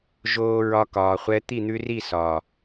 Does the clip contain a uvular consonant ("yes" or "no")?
yes